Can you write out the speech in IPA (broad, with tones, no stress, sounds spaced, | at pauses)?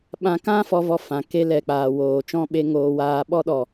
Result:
ɓ ã˧ k ã˦ f ɔ˧ v ɔ˧ f ã˨ k e˦ l ɛ˨ k͡p aː˨ w oː˨ t͡ʃ ɔ̃˦ ɓ e˧ ŋ oː˧ w aː˧ ɓ ɔ˦ ɗ ɔ˨